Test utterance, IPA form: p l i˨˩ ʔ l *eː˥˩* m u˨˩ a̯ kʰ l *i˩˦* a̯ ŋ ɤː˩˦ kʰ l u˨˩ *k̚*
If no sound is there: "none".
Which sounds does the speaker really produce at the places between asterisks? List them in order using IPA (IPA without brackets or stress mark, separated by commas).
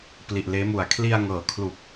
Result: eː˦˥, i˧, k̚